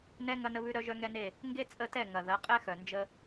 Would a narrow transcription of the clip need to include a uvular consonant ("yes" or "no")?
yes